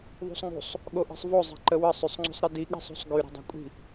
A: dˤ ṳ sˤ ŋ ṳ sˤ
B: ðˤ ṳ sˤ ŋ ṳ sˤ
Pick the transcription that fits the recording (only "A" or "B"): B